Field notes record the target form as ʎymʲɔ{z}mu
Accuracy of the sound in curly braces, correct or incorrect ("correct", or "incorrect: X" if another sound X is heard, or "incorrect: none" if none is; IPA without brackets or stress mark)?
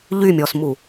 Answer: incorrect: s